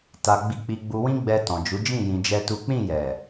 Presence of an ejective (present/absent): absent